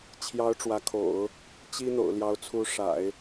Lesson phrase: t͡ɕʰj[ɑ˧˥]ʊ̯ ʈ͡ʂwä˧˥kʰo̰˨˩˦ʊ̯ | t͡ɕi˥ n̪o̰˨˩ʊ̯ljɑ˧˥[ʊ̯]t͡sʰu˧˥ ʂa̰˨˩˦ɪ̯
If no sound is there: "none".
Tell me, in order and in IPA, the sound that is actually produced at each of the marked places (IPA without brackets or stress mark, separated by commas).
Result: ɑ˧˥, ʊ̯